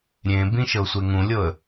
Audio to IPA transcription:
ɾʲẽbĩ ʃɤsʷeŋũlʲɤə̯

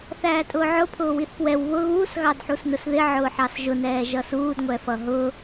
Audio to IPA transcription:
θæːtʼʊːʕʊ pʰʊːwiθpwɛw βʊ ɣuːs ɣɑdħusnʊsðɪ ʕʊːħɑsʒʊ nɛːʒʌsuːd ŋʷɛfʌɦʊ

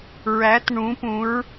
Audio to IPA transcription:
ɹæ˨˦tɳũ˨˦pũ˨˦ɹ

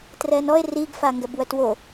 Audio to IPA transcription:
trɛnɔe̯ riɡfa ŋɡɛbwœtwo

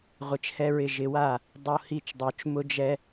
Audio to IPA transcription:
ʁʷɪ˨˥t͡ʃhɛ˦ɹɪ˥˩ ʒɪ˨˥wa˥˩ | dˤo˦hi˥˩t͡ʃdˤo˨˥t͡ʃ mʊ˦d͡ʒɛ˦

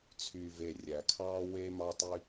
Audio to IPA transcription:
t͡sʰyː˨ve˨ rʲæ˨kʰɑː˦we˦ mɑ˧tˤy˧

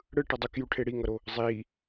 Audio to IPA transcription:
ɽɯ ʈʌdˤukjuʈʰe ɽiŋʌɾo | zˤiː

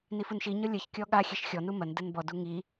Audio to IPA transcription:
nifunʃiɲɔ lʲɐç kʲɔɠaxʲɛʃ xʲɔnu mɐn dɘnbɔdu ŋi

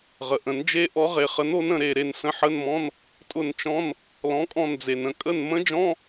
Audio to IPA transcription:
ʁə˩ʔə̃˨˩˦n d͡ʒe˦˥ ʔɔ˨˥ʁe˩χə˨˥no˨˥n ə̃˦˨ɾe˦˨ ɾe˦˨nsə̃˧˥˧ħə˧˥˧nmɔ̃˧˥˧n | tʼʊ˦˨nt͡ʃɔ̃˧˥˧n | lɔ̃˨˥kʼɔ̃˦˨nd͡ze˩n ə̃˦˨kʼə˦˨nmə̃˦˥d͡ʒɔ̃˧˥˧

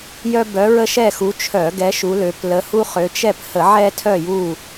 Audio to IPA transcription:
jœ˦ bœ˨˦ɹə˦ʃɛ˦˨xu˨˦ t͡ʃʰœ˧˩˧ɡɛ˨˦ ʃu˨˦lø˨˦p lə˨˦hu˦χø˨˦ t͡ʃɛ˦˨phə˧˩˧ ʕɛ˦tʰœ˦˨ju˦˨

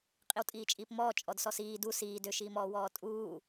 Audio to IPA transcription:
qʼiwtʼiːt͡ʃʼiːpmɔː t͡ʃʼɔdsɔsiː du siː døʃiːmɔː wɔːtʼuː

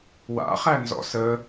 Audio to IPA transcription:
wa̰χænzɔ̰ sə

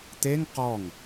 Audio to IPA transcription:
t̪eŋ qɔŋ

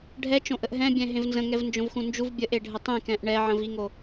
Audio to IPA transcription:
ɖʱɛt͡ʃõʔəʔ ɦɛ̃bʲɛ̃ ɦẽvnzə̃ŋɛv nd͡ʒõvxũnd͡ʒuv bʲəʔeɖʱə tˤẽkɛ̃ʔ ɳɛʕə̃viŋo

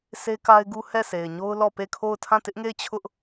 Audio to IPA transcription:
se˦ka˦ɪ̯ɡu˦ hɛ˦˨se˨ɪ̯ɲo˦ʊ̯ lɔ˦˨pe˦˨kʰo˦˨ʊ̯ tʰã˦˨tɪ˦ʔŋe˦˨ɪ̯ t͡ɕʰʊ˦ʔ

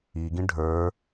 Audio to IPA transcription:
iɡĩ ɖʱə˞

